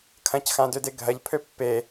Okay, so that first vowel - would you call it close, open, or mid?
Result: open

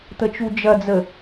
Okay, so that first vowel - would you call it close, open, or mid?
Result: mid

